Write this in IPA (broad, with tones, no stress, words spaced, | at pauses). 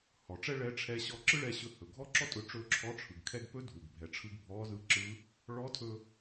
hɔ˩˧ʈ͡ʂɛ˥ ɭɛ˧˥ʈ͡ʂʰɛ˧˥ ɕɔ˧ǁɯ˥ɭɛ˧ɕɵ˧ hɵ˩ɡʱɔ˥ǁɔ˥tʼɵ˧ ʈ͡ʂɵ˧˥ǁʰɔ˧˥ʈ͡ʂʰɯ˩ɡ kʰɛ˧ɡpɵ˧˥ dʱu˩ɡbʱɛ˩˧ʈ͡ʂʰɯ˧ɡ bʱɔ˧˥zɯ˧˥ǁɯ˧˥ | ɭɔ˧˥tʰɵ˧